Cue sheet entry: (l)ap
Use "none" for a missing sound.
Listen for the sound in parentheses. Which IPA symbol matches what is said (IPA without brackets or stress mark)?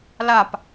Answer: l